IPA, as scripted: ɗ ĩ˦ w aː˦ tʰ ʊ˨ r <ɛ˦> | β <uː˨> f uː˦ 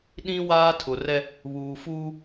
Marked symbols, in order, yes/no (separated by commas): yes, yes